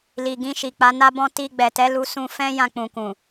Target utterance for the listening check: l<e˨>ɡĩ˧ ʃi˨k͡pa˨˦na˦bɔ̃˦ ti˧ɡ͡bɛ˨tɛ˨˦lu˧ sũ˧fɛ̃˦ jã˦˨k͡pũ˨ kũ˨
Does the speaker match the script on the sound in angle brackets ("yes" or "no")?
no